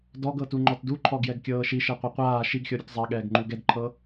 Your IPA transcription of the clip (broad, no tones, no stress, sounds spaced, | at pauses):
d ɔ ɡ ɤ t u ŋ͡ǃ ɔ t d u ǃʰ ɔ ɡ j ɛ ɡ kʲ ɤː ʃ i ʃ ɛ qʷ e qʷ aː ʃ i ɡ xʲ ɔ ɾʲ u t zˤ a ɠ ɛː ɡ ŋ͡ǃ u ɡ ɛ d ǃʰ ɤ